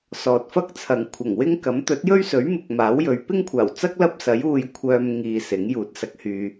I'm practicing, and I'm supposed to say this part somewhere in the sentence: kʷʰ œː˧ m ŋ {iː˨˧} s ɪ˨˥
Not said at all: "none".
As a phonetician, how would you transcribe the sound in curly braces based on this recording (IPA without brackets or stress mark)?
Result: iː˨